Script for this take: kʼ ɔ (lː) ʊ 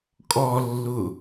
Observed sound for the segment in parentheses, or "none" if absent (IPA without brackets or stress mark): lː